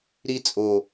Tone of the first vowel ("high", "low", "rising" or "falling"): high